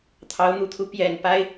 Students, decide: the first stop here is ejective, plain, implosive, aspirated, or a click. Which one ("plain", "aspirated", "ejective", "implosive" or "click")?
aspirated